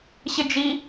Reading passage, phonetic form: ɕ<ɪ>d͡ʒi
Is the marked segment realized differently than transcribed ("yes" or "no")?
no